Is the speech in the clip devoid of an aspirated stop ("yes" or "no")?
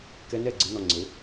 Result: yes